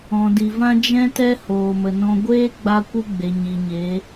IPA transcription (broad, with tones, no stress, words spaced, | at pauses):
ɔ̃˨di˨vã˦ d͡ʒɛ̃˦tɛ˦ hoː˧mə˧nɔ̃˦ ɡʷeː˦ ɡ͡ba˦kʷɨ˦ ɡ͡be˨ɲi˨ɲeː˨˦